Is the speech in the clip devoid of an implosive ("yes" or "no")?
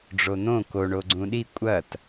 no